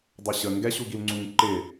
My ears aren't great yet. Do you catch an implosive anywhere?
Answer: no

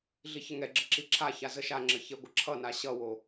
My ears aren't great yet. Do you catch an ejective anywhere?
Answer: no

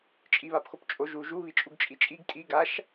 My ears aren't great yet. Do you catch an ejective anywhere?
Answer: yes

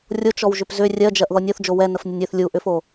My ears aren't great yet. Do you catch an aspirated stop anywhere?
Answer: no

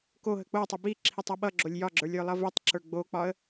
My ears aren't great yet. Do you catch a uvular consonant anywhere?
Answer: no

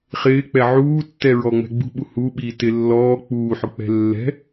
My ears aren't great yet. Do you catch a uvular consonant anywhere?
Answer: yes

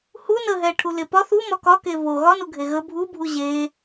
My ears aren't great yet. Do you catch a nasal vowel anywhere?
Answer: no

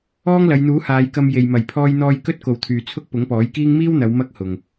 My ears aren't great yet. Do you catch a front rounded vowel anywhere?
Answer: yes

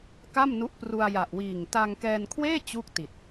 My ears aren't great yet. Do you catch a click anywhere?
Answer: no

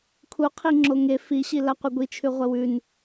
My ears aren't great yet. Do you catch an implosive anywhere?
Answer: no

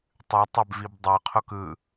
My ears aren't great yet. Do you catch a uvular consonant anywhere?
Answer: yes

